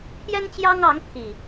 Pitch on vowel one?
high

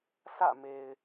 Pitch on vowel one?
falling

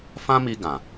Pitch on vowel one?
high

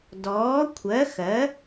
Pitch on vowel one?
rising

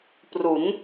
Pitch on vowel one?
rising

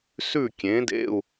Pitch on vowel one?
falling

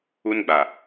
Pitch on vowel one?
high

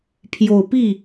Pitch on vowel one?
low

